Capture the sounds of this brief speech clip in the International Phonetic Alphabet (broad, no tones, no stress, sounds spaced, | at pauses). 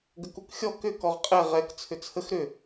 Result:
ɡ ə k u k xʲ ɔ k ʏ k ɔ ʁ qʼ ɛ ʁ ɛ k t͡sʰ ʏ t͡sʰ ə x ɾ ʏ